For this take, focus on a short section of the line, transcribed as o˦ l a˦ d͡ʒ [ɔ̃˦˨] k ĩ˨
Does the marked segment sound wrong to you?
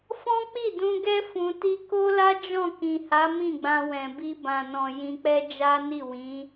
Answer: no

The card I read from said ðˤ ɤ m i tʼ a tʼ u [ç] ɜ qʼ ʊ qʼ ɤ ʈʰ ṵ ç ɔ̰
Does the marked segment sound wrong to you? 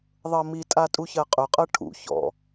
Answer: no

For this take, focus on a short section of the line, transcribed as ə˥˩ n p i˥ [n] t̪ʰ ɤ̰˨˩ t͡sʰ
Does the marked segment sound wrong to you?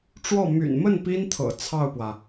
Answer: no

